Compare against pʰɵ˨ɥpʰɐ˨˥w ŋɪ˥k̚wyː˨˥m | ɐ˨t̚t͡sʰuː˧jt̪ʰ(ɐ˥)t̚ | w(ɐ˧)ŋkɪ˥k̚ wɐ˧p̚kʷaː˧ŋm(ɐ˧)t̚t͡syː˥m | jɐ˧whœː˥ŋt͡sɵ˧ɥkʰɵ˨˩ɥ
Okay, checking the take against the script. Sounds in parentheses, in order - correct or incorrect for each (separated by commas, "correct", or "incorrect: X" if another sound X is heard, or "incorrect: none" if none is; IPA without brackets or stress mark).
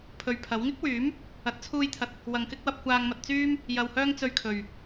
incorrect: ɐ˨, correct, correct